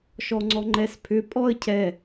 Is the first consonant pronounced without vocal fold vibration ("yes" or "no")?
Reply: yes